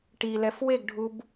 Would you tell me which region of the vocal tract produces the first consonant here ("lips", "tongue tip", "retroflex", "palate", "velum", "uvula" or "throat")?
retroflex